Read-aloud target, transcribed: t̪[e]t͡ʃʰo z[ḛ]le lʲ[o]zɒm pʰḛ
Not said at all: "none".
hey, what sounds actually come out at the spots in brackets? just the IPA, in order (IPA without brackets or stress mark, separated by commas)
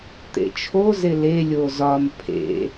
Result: ḛ, e, o